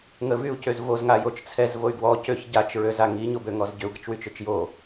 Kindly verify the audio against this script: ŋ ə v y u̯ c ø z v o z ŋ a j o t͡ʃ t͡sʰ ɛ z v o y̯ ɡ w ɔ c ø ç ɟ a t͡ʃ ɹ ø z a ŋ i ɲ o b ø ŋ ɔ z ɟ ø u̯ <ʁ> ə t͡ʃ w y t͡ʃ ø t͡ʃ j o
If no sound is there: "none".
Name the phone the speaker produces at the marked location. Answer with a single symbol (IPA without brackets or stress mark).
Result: ɡ